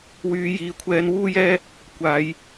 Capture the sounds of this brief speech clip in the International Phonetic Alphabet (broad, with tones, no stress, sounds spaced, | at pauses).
w yː˨˧ j iː˨ kʷʰ ɛː˧ n w uː˥ j ɛː˥ | kʷ aː˨˧ j